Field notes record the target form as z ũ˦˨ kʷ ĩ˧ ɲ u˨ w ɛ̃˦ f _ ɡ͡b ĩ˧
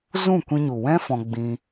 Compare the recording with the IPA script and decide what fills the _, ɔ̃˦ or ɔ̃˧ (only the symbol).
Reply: ɔ̃˧